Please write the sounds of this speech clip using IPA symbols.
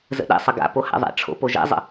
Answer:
zə̰ɗɛ̰sˤə ɡa̰ poha̰ðˤɛ̰ ʈ͡ʂʰo̰poʒɛ̰zˤə̰

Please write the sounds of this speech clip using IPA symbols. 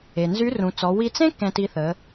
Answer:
e˩nzy˧˥ rũ˩˧t͡sɔ˩˧ wi˧ t͡sẽ˥ kɛ̃˧ti˧θə˩˧

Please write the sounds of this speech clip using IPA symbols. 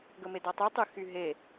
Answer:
ɡəmedɔtˤy tˤyxyɦe

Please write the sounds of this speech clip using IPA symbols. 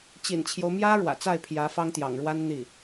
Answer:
t͡ɕḭ˨˩nt͡ɕʰjo˦ʊ̯mjä˥ ɻwä̰˨˩t͡sa˥˩ɪ̯ pʰjä˧˥fɑ˥ŋt̪jɑ̰˨˩ŋɻwa˥n n̪i˥˩

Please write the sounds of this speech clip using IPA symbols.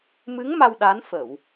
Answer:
mɨ˨˦ŋ ma˧wɗa˨˦nfə˧˩˨w

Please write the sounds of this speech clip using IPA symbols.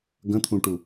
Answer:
ɡə̃t̪ʰũʈu

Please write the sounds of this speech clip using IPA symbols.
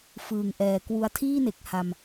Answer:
fɯː˨˩ŋʔɛː˨˩kwu˦˥a̯ tʰiː˥˩ne˨˩k̚ ha˧m

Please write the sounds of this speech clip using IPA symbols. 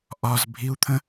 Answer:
ʔɒzbʱiu̯t̪ʰə̃

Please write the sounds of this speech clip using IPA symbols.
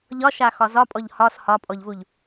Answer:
ʎɒʃaxɒ zɒpʼɔʎ hɒs hɒpʼɔʎvuʎ

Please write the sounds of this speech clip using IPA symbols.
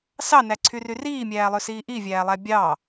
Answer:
sɑnæǀʰyry riːmʲæːlˠøsiː ʔivʲæːlˠæ bʲɑ

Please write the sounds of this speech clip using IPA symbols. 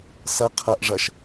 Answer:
sɐ qʰɐʔ ʐɐʃ

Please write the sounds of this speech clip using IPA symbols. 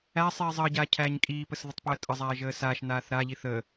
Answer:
æ sˤiːzˤəːɟaː cʰæːɲkʼiːpəs ðətˤpəːtʼəzˤæː ʒəːsaʃnaːθ ɾaʎiθ ə

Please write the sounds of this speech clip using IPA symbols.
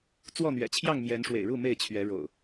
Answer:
t͡swɔ˥˨n̪ɥɛ̰˨˩t͡ɕʰjɑ˥˨ŋ mjɛ˨˦nʂwḛ˨˩ɪ̯ɻu˥˨ me˥˨ɪ̯t͡ɕʰɥɛ˨˦ɻo̰˨˩ʊ̯

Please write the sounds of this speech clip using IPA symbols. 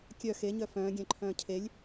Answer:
kʲœ xeɲœ fœ̃ːɡʲɛ̃ǃʰœ̃ː cʰelʲ

